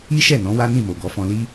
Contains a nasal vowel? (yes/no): yes